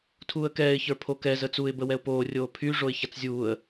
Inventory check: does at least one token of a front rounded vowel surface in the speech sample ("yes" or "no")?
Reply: yes